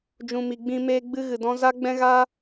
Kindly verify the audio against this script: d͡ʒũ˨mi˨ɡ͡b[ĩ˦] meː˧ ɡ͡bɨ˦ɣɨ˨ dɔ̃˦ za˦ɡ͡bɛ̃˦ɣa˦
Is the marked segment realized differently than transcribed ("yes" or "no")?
yes